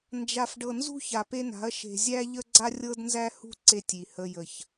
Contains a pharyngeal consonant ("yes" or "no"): no